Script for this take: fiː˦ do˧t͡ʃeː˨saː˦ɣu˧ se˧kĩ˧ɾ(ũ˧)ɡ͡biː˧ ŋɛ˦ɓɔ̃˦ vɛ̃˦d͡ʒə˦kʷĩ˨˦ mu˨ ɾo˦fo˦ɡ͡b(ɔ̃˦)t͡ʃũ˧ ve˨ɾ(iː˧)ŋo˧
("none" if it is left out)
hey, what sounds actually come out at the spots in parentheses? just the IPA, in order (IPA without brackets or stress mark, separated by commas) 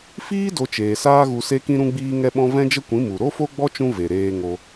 ũ˧, ɔ˦, eː˧